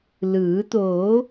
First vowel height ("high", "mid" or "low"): high